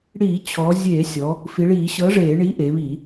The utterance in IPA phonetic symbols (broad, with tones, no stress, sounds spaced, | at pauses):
ɽ iː˧˩˧ t͡ɕʰ ɔ˩˧ zʲ eː˧˩˧ sʲ ɔ˩˧ | f i˩˧ ɭ iː˧˩˧ ɕ ɤ˨˥ ʐ eː˧˩˧ ɳ iː˨˥ ʔ eː˩˧ β i˧˩˧